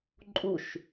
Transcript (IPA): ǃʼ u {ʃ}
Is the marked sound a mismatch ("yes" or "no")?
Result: no